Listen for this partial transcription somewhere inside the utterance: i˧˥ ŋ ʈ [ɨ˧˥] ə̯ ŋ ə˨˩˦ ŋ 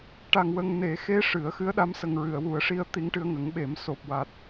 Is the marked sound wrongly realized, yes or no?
yes